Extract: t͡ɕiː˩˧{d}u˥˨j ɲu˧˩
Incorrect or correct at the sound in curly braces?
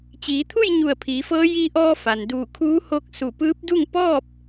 incorrect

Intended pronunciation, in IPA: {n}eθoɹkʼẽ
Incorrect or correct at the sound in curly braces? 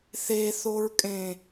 incorrect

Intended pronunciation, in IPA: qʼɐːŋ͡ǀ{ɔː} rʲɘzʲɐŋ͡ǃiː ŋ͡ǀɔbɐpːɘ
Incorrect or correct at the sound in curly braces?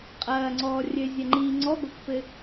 correct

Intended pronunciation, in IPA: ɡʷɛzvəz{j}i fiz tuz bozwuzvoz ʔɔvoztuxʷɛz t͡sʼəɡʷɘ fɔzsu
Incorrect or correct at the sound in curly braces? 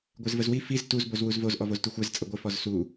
incorrect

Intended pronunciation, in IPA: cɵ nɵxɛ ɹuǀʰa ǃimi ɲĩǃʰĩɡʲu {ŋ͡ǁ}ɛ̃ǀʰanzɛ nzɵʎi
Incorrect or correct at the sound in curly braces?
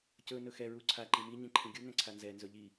incorrect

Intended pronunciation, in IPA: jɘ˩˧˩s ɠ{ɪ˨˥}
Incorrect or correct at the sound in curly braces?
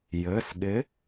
correct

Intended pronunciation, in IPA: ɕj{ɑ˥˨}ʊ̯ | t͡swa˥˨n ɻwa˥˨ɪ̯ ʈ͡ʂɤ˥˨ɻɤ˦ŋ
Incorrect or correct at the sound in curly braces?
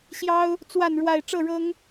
incorrect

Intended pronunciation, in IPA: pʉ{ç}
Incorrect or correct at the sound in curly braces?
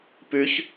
correct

